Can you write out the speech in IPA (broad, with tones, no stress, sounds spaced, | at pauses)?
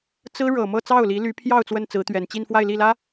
t͡s ɹ̩˥ ɻ ɤ˨˩ m ɤ˥˧ t͡s ɑ˥˩ ʊ̯ l i˧˥ l y˧˥ pʰ j ɑ˥˧ ʊ̯ t͡s w ə˥˩ n t͡s ɹ̩˧˥ t̪ ɥ ɛ˨˩ n t͡ɕ i˥˧ n f w a˥˧ ɪ̯ l i˥˩ l ä˥